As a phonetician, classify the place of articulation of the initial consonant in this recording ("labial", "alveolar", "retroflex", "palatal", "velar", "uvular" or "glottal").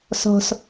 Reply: alveolar